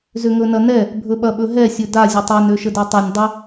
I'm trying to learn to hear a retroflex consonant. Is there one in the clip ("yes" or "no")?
no